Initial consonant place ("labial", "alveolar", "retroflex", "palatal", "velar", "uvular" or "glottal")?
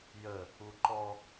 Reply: palatal